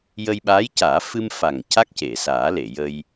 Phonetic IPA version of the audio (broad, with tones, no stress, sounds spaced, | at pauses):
j ə˧ j ɓ aː˧˥ j c aː˨˩˦ f ɨ˧ m f a˨˩ ŋ c a˦˥ k̚ c e˨˩˨ s aː˨˩˦ l e˨˩˨ j ə˧ j